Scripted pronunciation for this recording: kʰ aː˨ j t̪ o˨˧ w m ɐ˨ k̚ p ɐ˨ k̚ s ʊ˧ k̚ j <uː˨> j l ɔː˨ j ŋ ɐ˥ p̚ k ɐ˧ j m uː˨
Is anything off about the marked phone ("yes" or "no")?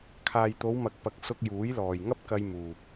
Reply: yes